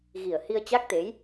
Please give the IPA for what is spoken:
ɣ i˨˩ ə̯ h i˧ ə̯ t͡ɕ a˦˥ k̚ t̪ e˨˦ j

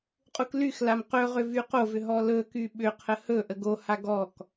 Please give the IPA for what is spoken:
qʼ u k l y x l a m q ɵ ʁ ʏ v y q o v ʏ ɦ ɔ l ɵ k y ɓ ʏ qʰ ə h ɵ ʔ ə ɡ o h a ɡ ɔ k

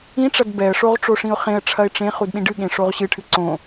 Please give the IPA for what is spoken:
ĩ ʈ͡ʂ ɐ d b ɛ ə̯ ʂ o ʁ ʈ͡ʂ o ʂ ĩ ʊ̯ χ ẽ ə̯ ʈ͡ʂʰ ɐ ɪ̯ ʈ͡ʂ ẽ χ u d ɗ ĩ ɖ ɨ ɠ ẽ ʂ o ʁ ɕ ɨ ʈʰ ɨ ǀ õ

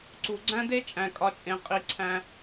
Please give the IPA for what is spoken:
ǀ u˩ ɡ͡ǀ æ̃˦ d e˦ t͡ʃʼ æ̃˩ kʼ ɒ˨ t͡ʃʼ ẽ˩ qʼ i˩ ǀʰ æ̃˨

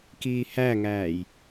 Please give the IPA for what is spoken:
k iː h æ ŋ æː j

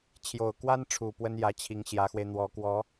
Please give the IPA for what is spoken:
t͡ɕʰ j o˨˩ ʊ̯ k w a˥ n ʈ͡ʂʰ u˨˩ p w ə˥ n j ä˧˥ t͡ɕʰ i˧˥ ŋ ɕ j ä˧˥ x w e˧ ɪ̯ n̪ w ɔ˧˥ k w ɔ˧˥

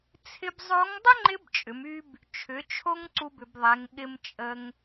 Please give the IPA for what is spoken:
t͡sʰ ɪ˧ b zˤ o˧˥ ŋ dˤ ʏ˥ ŋ͡ǃ ɪ˧˥ b t͡ʃʼ ʏ˩˧ m y˧ b | t͡ʃʰ ʏ˩˧ t͡ʃʰ o˧ ŋ ǀ u˧ b ʏ˩˧ b ðˤ ɛ˩˧ ŋ ɠ ɪ˧ m t͡ʃʼ ə˧ ŋ

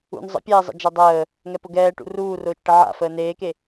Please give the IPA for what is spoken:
ṵ n zˤ ə̰ pʲ ɛː zˤ ə̰ d͡ʒ a dˤ əː | ŋ ɛ p ʊ ɡ ɛː ʈ ṵ r uː r ʊː t͡ʃ ʈ ə ʕ a̰ f əː n eː k e

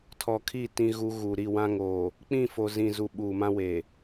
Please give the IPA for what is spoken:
tʰ ɔ˨ kʰ i˦˨ t ĩ˦ ɣ u˦ ɣ u˨ ɾ i˦˨ w ã˦ ŋ oː˨ | k͡p ĩ˦˨ f o˨ z ĩ˨ z u˨ ɓ uː˨ m ã˦ w eː˨

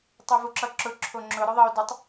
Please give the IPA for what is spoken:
tˤ o v u ǁ ʌ ǁ ʊ ǁʰ o ŋ͡ǁ ʊ ɾ ʊ ðˤ ʌ o̯ d ʊ tˤ

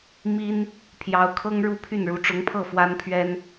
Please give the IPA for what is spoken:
m i˥ n | pʰ j ɑ˧˥ ʊ̯ kʰ ɤ˥ ŋ ɻ u˥ pʰ y˥˩ n ɻ u˧˥ ʈ͡ʂ ʊ˧˥ ŋ pʰ ɤ˥˩ f w a˥ n pʰ ɥ ɛ˥ n

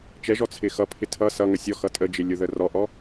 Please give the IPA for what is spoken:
t͡ʃ ɛ ʒ ɔ t͡sʰ ɪ x ʌ pʰ ɪ tʰ ʌ s ʌ ŋ ə sʲ ɔ x ʌ tʼ ə d͡ʒ ɪ lʲ ʊ ð ə r ɔ ʔ ɔ

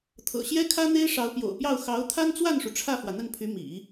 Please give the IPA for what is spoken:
t̪ʰ ɤ̰˨˩ ɕ j ɛ˥ kʰ ä˥ n̪ e˥ ɪ̯ ʂ ɑ˧˥ ʊ̯ p j o̰˨˩ ʊ̯ p j ɑ˥˩ ʊ̯ x ɑ˧˥ ʊ̯ t̪ʰ a˥ n t͡s w a˥˩ n ʂ u˩ ʈ͡ʂʰ ä˥˩ f w ä˩ n̪ ə˥˩ n pʰ y˧˥ m ḭ˨˩˦

